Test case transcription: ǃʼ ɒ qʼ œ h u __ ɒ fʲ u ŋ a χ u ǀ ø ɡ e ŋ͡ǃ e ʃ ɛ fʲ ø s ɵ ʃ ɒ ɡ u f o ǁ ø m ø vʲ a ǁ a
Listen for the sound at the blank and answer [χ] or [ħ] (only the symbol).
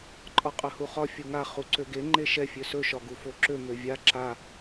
χ